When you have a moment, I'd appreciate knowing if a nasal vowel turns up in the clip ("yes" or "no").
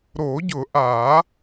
no